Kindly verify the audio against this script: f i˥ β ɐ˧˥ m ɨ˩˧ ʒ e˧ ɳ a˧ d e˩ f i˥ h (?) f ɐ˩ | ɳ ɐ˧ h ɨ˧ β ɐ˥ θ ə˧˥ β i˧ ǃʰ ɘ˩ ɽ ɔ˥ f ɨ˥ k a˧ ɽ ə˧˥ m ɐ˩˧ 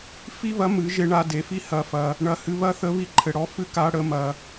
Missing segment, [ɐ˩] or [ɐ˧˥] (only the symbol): ɐ˩